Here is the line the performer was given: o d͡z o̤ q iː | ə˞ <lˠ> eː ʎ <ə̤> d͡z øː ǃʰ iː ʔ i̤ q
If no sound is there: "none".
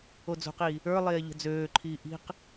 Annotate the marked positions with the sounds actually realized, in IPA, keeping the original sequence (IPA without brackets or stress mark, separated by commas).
lˠ, ə̤